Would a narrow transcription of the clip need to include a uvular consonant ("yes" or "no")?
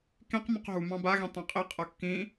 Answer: yes